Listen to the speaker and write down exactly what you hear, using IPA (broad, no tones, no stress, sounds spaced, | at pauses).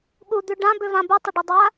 ɠ u d̪ ʉ ɖ ã b ʏ v ã b u tˤ ə ɖ u dˤ a